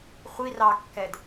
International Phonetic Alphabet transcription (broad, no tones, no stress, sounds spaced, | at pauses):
χʷ i r ɑ kː ɛ d